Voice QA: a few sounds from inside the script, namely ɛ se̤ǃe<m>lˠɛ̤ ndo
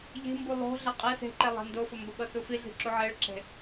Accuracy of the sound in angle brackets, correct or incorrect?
incorrect: none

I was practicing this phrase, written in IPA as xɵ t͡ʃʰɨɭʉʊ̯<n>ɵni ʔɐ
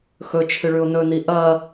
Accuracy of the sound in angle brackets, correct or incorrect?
correct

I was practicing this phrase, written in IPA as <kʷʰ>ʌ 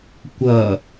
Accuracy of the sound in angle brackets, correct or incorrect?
incorrect: kʷ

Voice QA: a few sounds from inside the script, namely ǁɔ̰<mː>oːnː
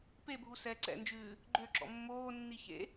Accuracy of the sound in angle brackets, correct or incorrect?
correct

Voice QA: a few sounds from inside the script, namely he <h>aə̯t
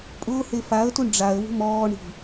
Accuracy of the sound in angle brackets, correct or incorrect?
incorrect: f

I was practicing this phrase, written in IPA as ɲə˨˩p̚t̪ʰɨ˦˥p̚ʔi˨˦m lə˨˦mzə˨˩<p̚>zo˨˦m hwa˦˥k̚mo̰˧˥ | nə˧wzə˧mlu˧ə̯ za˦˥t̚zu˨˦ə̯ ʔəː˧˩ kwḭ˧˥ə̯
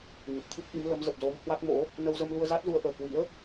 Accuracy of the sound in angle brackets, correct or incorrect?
correct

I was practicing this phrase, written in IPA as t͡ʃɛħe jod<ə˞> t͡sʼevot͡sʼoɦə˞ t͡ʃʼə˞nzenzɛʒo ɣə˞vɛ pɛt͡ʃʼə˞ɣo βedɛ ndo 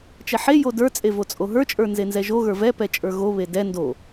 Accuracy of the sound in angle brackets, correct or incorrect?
correct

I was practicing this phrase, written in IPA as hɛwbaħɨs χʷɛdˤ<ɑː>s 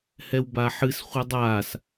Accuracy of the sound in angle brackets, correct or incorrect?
incorrect: aː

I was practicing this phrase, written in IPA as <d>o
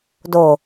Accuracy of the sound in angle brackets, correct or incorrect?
correct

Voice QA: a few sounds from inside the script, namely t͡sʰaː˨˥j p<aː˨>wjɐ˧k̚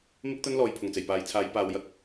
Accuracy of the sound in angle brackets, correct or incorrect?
correct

